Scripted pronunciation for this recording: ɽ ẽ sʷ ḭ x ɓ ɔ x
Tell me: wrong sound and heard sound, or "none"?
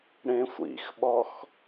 none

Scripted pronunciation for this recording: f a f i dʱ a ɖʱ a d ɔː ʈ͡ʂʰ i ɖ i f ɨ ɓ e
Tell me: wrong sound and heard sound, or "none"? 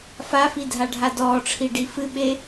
none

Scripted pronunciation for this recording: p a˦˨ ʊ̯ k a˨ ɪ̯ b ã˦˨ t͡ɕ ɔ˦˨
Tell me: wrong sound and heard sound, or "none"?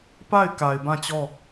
ʊ̯ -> ɪ̯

